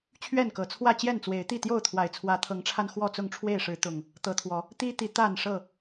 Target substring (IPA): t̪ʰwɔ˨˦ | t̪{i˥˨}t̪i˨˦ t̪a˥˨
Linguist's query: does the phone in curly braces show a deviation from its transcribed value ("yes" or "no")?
yes